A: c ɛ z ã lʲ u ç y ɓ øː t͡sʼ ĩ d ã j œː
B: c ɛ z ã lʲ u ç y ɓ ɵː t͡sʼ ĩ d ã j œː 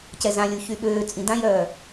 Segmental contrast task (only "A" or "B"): A